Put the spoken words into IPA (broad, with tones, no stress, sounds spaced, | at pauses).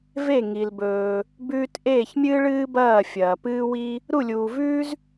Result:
v e˥˩ ŋ i˩ l b ɵː˩ | b ʉː˧ t ʔ eː˥˩ ç mʲ ɨː˥ ɭ ɨː˥ b ɐː˥˩ fʲ ɐː˩ p ɨː˥ w i˥ | ɾ u˥˩ lʲ uː˩ v ʉː˥ z